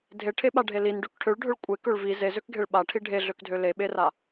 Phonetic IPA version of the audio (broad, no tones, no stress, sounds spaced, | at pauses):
dʱ e ʈʰ e ɓ a ɖʱ e l i n ɖ ø k ʈʰ ø ɭ ɖʱ ø ɭ kʷʼ e k ø ɭ v i z e z ø k ɡʱ e ɭ ɓ a ʈʰ i ɖʱ e ɮ ø k dʱ ø l e ɓ e r a